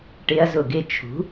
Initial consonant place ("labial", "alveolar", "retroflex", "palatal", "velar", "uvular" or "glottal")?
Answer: retroflex